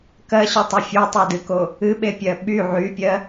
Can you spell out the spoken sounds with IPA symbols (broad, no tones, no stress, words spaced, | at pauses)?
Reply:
kɜɕytˤɨ fʲotˤodɨko | ɨɓepʲɜ ɓy ʕypʲɜ